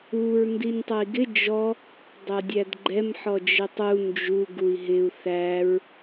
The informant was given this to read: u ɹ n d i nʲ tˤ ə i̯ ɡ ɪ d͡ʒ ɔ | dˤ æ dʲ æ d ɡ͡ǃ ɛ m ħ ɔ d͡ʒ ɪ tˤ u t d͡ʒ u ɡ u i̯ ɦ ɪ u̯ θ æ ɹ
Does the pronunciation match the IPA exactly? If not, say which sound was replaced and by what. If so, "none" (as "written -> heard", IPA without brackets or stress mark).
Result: t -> n